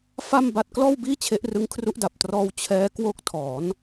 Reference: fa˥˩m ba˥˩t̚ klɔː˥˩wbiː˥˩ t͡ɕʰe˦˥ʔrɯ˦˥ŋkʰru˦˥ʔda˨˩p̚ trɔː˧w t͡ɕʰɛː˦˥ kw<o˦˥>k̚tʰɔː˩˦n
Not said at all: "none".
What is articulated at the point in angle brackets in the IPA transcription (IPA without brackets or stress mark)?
o˦˥